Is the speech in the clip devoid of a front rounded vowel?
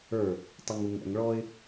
no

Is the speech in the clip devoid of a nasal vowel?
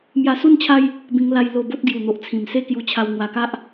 no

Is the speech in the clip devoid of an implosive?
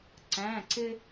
yes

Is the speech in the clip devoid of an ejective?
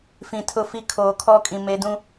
no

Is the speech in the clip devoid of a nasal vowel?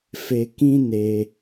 no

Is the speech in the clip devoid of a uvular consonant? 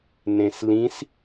yes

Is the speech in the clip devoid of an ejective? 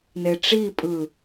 no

